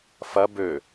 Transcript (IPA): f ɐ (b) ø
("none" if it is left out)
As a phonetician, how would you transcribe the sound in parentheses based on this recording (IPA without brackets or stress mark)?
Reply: b